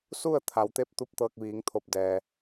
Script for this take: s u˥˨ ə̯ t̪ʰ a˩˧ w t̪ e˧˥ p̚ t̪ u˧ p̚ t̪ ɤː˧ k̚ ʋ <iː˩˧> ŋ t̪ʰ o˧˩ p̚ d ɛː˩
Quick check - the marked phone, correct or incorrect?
correct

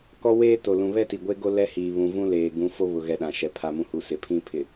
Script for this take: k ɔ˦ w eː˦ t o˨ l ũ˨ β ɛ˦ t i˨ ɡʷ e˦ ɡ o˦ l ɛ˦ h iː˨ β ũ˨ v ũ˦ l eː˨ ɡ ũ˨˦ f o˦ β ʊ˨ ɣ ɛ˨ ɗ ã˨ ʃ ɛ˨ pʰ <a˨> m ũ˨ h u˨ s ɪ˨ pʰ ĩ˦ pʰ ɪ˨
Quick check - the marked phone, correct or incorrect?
correct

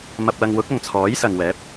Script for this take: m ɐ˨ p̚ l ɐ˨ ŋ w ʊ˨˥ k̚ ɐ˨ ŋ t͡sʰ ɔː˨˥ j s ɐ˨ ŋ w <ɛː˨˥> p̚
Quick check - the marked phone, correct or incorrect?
correct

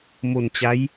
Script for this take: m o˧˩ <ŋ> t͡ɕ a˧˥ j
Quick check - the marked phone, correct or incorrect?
incorrect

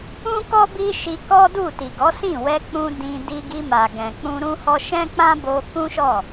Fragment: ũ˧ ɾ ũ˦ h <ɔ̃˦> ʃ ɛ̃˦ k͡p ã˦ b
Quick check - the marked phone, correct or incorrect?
incorrect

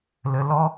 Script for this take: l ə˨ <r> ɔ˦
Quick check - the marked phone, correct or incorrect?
incorrect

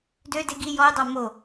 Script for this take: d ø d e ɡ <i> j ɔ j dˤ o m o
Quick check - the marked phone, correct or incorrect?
correct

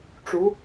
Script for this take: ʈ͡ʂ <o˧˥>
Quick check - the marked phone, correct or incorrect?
incorrect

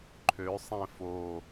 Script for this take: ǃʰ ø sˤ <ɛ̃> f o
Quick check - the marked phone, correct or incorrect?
correct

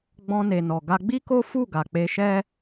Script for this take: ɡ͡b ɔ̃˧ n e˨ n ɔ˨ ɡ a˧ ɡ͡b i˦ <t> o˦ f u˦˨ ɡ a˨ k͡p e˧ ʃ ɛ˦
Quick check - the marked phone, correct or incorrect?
incorrect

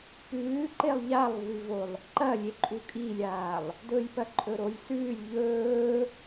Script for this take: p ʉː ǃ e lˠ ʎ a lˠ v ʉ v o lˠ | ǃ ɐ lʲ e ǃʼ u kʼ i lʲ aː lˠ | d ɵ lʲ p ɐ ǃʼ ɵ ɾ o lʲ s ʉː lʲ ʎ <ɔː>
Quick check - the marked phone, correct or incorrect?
incorrect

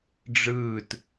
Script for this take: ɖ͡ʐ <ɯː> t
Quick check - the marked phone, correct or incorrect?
correct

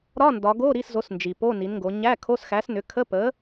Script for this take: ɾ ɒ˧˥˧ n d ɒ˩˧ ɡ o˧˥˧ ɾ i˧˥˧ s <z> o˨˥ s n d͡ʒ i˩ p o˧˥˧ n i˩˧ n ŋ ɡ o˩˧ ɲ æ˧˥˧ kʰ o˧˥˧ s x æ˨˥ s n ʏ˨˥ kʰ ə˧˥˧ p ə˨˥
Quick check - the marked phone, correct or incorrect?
correct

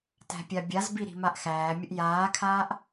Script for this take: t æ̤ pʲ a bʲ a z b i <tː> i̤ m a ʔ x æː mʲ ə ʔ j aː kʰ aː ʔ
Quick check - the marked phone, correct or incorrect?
incorrect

